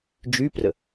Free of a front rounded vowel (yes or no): no